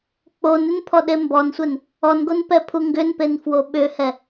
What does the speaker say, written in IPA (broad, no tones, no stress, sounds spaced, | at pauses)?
k͡p o n ʏ n pʰ ɔ ɗ e m b ɔ n sʷ ɛ n | ɔ n ɡ o n p ɛ pʰ u ŋ ɡ ʏ n p e n f w o ɓ ʏ h ɛ